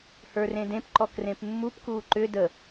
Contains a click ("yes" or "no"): yes